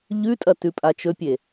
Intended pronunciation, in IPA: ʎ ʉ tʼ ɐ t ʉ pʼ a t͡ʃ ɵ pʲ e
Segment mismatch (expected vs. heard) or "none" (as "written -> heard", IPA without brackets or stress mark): none